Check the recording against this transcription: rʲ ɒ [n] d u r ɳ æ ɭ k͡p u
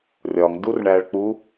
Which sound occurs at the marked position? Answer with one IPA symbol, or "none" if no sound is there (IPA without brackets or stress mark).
ŋ